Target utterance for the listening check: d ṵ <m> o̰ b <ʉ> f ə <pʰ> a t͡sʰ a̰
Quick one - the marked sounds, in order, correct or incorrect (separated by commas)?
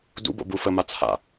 incorrect, incorrect, incorrect